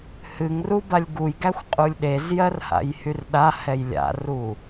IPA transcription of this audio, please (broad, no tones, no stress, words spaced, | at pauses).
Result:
hɨŋru balʲɡujɡæxʷ qʼulʲɗezjɜr ha̰jhyrɗahɛj lʲa̰ru